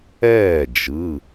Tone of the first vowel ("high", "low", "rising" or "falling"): falling